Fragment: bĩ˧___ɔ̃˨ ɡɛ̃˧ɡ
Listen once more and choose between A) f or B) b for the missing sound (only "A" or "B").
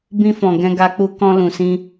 A